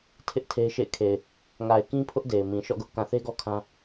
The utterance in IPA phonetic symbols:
tʰ ɪ˦ ʔ tʰ e˦ ɪ̯ ʃ ḛ˦˨ ɪ̯ kʰ e˨ ɪ̯ | ŋ a˨ ɪ̯ k ĩ˦ pʰ ʊ˦ ʔ d e˨ ɪ̯ m ĩ˨ ʃ ɔ̰˦˨ ɡ ʊ˦ ʔ k ã˨ θ e˦ ɡ ɔ˦ kʰ ã˦

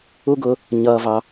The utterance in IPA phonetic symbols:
u˦ ɡ ʊː˧ | ɲ ʌː˧ v ɑ˧

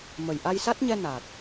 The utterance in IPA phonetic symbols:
m ə˨˩ j ʔ a˧ j s a˦˥ t̚ ɲ ɛ˧ n a˨˩ t̚

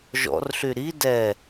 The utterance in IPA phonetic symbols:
ʒ ɔ̰ r ɬ y ɾ i d ɛ

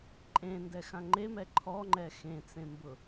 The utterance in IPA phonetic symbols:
ǃʼ ẽ n d ɛ x ã ŋ͡ǃ e m ɛ ǃʰ ɔ ŋ͡ǃ ɛ x ẽ t͡s ẽ m b ʊ

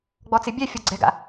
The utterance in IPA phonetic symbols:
ɡ͡b ɔ t͡s ɪ bʲ ɛ fʲ ɔ ɡ͡ǀ ɛ̤ ɡ a̰

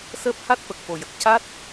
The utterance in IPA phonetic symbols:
s əː˦˥ p̚ h a˦˥ t̚ f ə˨˩ k̚ f o˨˩ j ə˨˩ k̚ c a˦˥ t̚

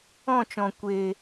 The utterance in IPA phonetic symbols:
ɔ̃˦˨ t͡ʃ ɔ̃˨ kʷ eː˨

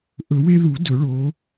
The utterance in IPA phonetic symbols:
ʔ ɵ˨˩˦ w e˦ ð u˨˩˦ d ɵ˨˩˦ ɭ o˨˦

